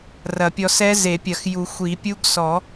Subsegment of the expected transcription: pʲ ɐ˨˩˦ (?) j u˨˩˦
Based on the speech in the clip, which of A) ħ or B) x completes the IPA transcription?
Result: B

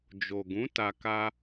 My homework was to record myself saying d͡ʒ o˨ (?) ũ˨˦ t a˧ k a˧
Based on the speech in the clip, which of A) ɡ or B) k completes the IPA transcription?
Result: A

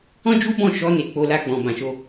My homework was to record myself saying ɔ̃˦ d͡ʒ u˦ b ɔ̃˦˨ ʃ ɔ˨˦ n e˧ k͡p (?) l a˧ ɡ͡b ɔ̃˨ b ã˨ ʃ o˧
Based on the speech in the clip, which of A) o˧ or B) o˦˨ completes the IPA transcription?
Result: A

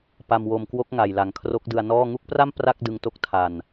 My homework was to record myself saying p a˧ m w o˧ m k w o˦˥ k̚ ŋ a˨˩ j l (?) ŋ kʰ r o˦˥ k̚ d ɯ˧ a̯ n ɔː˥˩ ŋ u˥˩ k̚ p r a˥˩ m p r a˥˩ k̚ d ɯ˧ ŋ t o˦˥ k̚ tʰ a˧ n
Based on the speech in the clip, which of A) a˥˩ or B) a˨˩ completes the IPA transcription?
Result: B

